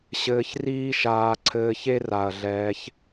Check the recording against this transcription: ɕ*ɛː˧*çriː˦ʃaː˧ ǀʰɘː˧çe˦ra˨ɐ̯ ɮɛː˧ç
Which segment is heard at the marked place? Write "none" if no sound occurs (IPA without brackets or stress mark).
ɘː˧